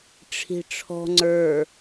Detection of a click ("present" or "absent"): present